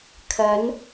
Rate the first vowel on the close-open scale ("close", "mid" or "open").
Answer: open